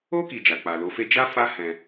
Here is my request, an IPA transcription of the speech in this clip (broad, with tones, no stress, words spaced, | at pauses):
o˦ ki˧d͡ʒa˨k͡pa˨ lo˨˦fe˦ d͡ʒa˦fa˦ hɛ̃˧